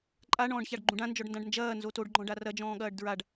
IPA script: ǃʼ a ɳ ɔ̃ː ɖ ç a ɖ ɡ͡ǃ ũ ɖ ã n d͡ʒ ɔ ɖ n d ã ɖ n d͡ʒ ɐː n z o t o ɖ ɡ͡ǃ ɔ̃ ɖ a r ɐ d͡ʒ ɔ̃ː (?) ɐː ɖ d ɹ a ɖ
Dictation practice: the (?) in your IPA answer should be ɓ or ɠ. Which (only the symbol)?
ɠ